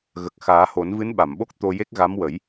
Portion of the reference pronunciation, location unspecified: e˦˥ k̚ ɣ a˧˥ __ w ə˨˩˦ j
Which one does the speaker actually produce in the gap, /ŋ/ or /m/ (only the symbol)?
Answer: m